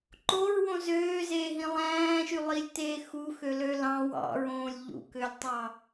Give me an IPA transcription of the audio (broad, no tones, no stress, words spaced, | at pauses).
ǃoɹwõ zøːzeːɦĩ lˠæ̃ːʃylˠilʲteː xuxølø lɑ̃ wɑ̰ɹõːlʲ ʎṵkølʲtˤɑ